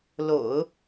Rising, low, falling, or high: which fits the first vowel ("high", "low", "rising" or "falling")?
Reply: low